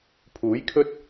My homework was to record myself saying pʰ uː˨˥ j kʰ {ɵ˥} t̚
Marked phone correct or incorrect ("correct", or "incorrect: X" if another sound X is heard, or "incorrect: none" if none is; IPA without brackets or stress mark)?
correct